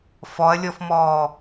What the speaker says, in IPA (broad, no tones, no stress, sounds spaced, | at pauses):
f ɔ ɐ̯ lʲ ɔ f m ɔː